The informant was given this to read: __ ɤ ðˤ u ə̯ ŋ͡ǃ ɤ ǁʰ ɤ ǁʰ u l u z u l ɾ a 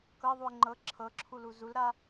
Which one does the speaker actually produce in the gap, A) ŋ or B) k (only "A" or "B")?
B